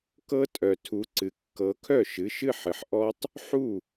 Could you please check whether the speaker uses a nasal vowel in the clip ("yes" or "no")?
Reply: no